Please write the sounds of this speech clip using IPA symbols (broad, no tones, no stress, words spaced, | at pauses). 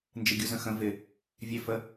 nd͡ʒɪɡʲuzə̃xə̃ vɪ | vʲɛfə